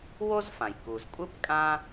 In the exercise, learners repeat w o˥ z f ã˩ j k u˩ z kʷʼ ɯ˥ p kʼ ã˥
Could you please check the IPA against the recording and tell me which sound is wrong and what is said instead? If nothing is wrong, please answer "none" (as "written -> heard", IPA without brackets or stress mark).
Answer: none